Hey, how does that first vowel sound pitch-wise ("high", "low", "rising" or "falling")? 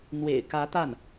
low